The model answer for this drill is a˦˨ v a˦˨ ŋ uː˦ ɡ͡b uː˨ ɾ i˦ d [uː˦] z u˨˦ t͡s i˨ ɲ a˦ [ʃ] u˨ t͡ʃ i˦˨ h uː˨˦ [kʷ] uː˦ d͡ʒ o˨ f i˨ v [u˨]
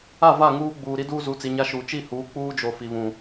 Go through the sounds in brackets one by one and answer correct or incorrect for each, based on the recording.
correct, correct, incorrect, incorrect

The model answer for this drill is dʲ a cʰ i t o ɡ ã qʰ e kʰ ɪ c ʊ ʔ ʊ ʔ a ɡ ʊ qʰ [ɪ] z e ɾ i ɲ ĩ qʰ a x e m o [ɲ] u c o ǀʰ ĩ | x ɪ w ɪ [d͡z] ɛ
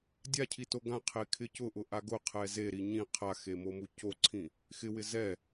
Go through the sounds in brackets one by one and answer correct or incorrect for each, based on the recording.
incorrect, incorrect, incorrect

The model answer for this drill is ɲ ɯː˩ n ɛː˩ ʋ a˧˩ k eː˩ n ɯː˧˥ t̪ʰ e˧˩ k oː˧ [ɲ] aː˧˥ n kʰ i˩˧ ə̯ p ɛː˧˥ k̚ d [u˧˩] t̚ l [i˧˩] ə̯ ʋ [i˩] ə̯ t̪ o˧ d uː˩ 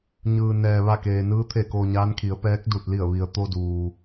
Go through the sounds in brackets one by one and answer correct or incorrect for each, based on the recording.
correct, correct, correct, correct

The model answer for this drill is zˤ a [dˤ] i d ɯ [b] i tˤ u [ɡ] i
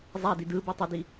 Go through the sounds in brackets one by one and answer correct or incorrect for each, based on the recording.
incorrect, correct, incorrect

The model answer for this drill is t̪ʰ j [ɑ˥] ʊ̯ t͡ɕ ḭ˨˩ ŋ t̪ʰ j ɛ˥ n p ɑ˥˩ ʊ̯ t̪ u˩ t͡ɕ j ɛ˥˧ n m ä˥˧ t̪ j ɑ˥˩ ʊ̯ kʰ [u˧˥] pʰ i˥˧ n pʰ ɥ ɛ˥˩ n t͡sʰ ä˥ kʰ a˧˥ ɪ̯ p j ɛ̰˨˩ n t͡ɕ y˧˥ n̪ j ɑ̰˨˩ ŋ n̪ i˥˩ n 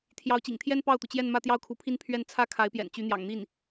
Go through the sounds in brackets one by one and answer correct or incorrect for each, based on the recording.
incorrect, correct

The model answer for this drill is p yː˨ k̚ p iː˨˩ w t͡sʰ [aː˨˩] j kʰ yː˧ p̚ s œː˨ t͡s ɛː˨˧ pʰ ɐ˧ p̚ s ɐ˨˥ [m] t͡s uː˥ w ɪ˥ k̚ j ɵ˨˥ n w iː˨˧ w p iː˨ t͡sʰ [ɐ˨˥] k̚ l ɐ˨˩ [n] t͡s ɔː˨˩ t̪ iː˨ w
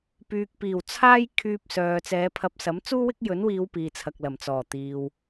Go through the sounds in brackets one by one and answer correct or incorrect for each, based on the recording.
incorrect, correct, incorrect, incorrect

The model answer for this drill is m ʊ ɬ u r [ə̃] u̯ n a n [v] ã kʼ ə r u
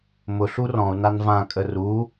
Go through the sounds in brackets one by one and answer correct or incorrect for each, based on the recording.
incorrect, correct

